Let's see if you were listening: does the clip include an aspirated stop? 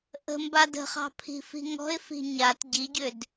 yes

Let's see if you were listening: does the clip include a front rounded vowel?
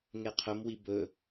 no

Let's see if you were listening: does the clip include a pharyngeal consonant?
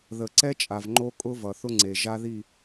no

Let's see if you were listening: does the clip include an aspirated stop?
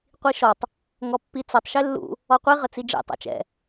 no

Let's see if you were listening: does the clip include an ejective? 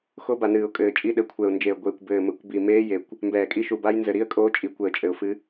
yes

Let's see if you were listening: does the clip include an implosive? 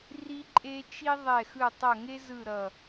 no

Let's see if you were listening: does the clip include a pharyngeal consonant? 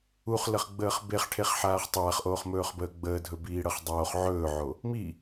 yes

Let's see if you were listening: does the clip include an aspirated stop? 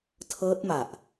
yes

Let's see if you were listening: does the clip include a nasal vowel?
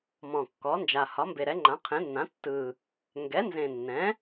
yes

